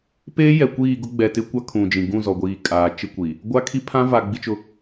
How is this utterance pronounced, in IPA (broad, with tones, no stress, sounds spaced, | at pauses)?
p eː˦ j ɛ˨ kʷ iː˦˨ ɡ ʊ˦ ɡ͡b ɛ˨ t ɪ˦ kʷ a˦ kʰ ũ˨ d͡ʒ ĩ˨ ɡ ũ˦˨ z ɔ˨ ɡʷ iː˨ kʼ aː˨ t͡ʃ ɪ˦ kʷ i˨ | ɡʷ a˦ kʰ i˦ pʰ ã˦ v a˨ ɡ͡b i˦ t͡ʃ ʊ˦